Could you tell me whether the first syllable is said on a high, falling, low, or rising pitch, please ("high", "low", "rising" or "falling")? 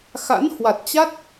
rising